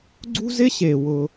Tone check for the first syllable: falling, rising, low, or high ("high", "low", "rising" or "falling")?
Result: high